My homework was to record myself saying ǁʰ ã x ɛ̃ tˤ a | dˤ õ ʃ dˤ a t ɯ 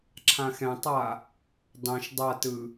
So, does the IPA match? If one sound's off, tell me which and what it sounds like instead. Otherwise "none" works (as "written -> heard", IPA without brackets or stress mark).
none